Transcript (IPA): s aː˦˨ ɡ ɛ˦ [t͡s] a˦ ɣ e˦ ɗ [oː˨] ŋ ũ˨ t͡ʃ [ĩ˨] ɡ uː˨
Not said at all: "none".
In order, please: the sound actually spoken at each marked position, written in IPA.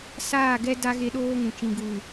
d, oː˦, ĩ˨

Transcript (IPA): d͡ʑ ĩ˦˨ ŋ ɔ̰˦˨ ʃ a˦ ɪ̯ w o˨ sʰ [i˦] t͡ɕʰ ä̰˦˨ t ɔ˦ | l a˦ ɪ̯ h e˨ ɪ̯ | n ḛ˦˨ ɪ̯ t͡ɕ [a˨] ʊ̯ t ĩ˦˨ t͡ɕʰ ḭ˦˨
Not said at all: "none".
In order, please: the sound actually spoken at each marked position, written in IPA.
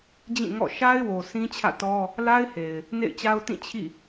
ĩ˦, a˦

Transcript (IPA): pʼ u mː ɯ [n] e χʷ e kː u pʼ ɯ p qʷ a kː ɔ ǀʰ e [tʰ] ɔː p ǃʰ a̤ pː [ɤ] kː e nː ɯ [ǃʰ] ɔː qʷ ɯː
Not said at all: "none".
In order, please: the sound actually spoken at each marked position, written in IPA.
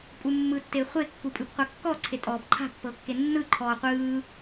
tː, tʼ, ɤ, ǃʰ

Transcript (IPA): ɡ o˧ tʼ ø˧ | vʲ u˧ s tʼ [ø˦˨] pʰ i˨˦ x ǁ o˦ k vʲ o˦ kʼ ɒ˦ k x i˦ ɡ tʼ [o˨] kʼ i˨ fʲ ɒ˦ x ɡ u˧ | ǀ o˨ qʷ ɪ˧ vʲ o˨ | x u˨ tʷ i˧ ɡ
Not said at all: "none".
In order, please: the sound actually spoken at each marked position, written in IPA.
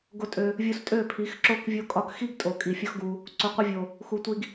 ø˦˨, o˨

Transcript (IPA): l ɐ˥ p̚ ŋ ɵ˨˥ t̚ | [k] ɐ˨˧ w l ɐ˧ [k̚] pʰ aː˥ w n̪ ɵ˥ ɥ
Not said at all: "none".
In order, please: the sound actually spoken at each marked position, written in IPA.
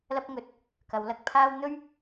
k, k̚

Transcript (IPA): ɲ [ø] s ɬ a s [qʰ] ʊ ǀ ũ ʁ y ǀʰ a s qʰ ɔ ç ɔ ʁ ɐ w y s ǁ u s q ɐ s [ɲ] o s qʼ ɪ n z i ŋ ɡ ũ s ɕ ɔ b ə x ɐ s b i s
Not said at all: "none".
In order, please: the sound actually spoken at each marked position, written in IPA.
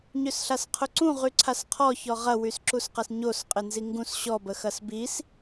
ø, qʰ, ɲ

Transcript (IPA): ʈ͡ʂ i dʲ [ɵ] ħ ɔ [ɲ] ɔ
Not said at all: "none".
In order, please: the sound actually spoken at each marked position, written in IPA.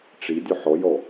ʊ, j

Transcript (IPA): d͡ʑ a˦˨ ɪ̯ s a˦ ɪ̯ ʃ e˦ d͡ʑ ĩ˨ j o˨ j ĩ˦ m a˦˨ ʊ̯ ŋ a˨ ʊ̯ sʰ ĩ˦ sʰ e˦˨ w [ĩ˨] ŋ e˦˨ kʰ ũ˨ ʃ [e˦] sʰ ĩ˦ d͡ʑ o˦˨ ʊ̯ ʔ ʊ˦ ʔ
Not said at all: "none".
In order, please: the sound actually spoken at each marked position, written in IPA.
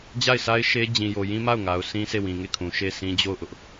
ĩ˨, e˦˨

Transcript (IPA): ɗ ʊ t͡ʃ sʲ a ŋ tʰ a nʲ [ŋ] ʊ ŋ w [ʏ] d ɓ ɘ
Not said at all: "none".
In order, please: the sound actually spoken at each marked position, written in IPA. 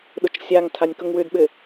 k, ʏ

